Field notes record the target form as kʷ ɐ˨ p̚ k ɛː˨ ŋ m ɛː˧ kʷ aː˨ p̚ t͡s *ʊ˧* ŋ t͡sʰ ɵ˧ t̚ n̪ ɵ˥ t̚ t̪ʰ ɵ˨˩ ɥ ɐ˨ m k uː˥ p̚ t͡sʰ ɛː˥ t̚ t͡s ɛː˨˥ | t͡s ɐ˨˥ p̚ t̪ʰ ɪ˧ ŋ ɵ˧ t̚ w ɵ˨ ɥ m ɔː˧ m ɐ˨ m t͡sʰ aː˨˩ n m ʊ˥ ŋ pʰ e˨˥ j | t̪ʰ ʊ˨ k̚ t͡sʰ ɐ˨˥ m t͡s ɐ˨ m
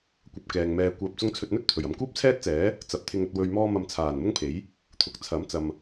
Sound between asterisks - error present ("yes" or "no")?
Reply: no